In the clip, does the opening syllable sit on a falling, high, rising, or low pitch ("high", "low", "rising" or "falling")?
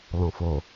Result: low